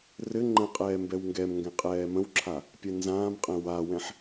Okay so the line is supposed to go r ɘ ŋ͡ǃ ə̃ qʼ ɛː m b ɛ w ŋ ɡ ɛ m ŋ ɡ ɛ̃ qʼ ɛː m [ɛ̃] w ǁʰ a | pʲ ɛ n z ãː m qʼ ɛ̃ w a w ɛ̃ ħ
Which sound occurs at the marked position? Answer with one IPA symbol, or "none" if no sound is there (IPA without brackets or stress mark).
ə̃